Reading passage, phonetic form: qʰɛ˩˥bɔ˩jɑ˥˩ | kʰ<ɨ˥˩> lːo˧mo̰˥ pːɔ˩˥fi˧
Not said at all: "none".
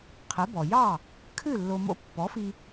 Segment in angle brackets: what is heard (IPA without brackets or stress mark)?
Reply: ɨ˥˩